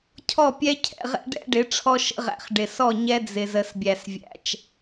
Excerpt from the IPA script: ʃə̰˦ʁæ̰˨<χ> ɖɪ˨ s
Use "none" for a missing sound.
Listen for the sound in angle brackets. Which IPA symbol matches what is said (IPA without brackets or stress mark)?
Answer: χ